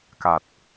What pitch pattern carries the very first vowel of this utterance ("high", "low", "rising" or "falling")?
low